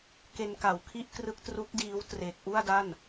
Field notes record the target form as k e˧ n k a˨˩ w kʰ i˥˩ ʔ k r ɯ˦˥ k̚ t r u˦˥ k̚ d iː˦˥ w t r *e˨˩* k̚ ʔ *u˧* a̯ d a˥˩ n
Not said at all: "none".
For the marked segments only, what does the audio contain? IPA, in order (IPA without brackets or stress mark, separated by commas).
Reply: e˨˩, u˥˩